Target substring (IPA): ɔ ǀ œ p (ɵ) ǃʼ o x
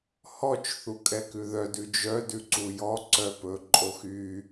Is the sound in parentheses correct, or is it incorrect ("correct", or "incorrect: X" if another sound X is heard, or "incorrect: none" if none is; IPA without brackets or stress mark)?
correct